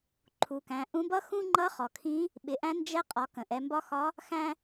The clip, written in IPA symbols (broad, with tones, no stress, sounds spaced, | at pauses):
ǃʰ u˩ k æ̃˩˧ ʔ ũ˧˥ b ʌ˥ x ũ˥ ŋ͡ǃ ʌ˧˥ χ ɔ˩ kʰ ĩ˧˥ | ɓ ɪ˩˧ ʔ æ̃˧˥ n d͡ʒ ɛ˧˥ qʼ ɒ˩˧ k ə̃˩ ʔ ɛ˩˧ m b ɒ˧˥ x ɒ˧˥ | x æ̃˥